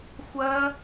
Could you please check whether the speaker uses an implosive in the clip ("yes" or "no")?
no